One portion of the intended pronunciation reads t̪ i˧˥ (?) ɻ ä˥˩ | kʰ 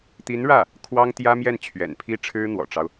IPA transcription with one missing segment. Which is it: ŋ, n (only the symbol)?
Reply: n